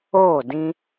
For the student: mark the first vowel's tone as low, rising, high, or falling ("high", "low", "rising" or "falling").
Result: falling